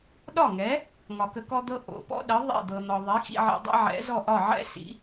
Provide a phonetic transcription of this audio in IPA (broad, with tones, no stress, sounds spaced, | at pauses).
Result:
ɗ ɒ˥˩ ŋ ɛ˩˥ | ŋ ɒ˩ k ə˧ k ɔ˥ d̪ ɤ˥ ʔ o̰˩ p ɔ̰˥ ɗ ə˩˥ ðˤ ḛ˥˩ d̪ ɤ˩ n̪ ɒ˩ ðˤ i˩˥ x ḭ˧ ʕ ḛ˧ dˤ ɛ̰˥ ʕ ɛ̰˩˥ z ɔ˥˩ ʔ ɒ˥˩ ʕ ɛ̰˥ s ḭ˩˥